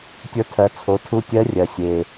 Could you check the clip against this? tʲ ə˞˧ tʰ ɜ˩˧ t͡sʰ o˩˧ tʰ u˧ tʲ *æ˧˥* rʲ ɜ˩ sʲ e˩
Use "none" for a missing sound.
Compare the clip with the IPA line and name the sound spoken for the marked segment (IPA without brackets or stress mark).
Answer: ɜ˧˥